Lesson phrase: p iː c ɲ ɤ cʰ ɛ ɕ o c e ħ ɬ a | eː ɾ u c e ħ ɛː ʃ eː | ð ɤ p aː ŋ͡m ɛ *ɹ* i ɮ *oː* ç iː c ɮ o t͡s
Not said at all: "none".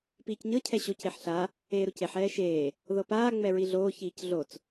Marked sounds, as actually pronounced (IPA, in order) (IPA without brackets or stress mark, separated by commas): ɹ, oː